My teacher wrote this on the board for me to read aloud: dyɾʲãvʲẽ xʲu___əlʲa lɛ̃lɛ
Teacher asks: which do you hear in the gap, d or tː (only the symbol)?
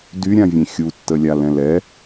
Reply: tː